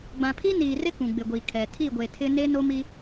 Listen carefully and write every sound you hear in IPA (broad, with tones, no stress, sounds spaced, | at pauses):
ɡ͡b ã˨ pʰ i˦ n iː˨ r ɪ˦ k ũ˨ ɡ͡b ɪ˨ ɡʷ i˨ kʰ ɛ˨ tʰ i˦˨ ɡʷ e˨ tʰ ɪ˦ n e˦ n o˦ m i˦